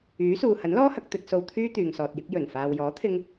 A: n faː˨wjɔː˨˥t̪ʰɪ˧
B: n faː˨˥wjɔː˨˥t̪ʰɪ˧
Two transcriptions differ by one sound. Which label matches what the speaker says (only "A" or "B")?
A